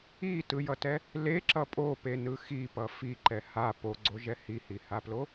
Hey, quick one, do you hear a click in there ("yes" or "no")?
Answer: yes